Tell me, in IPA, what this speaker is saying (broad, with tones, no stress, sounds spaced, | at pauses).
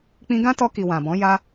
k͡p ĩ˧ ɡ ã˦ t ɔ˧ k i˨ w ã˨ b ɔ̃˨˦ j a˧